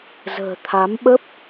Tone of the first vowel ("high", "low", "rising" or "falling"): low